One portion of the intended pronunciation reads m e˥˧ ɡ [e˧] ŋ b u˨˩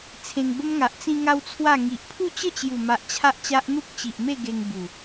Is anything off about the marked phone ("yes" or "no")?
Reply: no